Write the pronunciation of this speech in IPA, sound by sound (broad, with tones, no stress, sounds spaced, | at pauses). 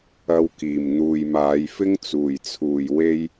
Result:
ɐ˧ w k iː˨˩ m n̪ uː˨ j m aː˨˧ j f ɪ˥ ŋ t͡s uː˨˩ j t͡sʰ uː˨˩ j w e˥ j